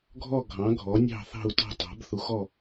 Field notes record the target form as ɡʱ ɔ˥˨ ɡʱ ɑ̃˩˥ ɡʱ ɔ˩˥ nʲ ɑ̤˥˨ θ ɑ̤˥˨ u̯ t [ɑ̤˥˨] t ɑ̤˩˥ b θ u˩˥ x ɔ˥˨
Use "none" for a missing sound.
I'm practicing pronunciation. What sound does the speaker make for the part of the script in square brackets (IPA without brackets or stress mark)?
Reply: ɑ̤˥˨